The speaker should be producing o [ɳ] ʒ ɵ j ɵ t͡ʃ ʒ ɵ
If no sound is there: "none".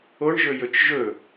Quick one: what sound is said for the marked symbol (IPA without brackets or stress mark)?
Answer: ɳ